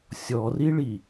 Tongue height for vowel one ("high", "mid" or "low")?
mid